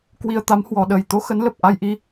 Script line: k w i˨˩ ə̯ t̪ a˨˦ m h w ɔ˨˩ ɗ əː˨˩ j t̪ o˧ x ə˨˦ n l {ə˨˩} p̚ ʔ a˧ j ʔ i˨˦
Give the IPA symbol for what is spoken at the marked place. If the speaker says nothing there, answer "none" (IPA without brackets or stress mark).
ə˨˩